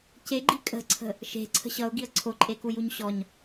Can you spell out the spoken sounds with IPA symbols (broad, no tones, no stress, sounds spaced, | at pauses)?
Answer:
c e ɡ͡ǃ i kʼ ə̤ ǀʰ ə̤ | ʃ e̤ ǀʰ ə̤ ɕ ʌ ʊ̯ ɡ i ə̯ ǀʰ o ǃʼ e k u j u ɲ ɕ ɔ ɲ